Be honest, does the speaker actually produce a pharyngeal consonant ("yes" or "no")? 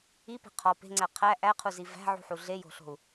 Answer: yes